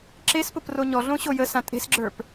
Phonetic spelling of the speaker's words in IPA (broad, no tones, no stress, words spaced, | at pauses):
ǁespʊpro ɲɔɮõɕo jəsã tʼe̤sɡ͡ǁə˞p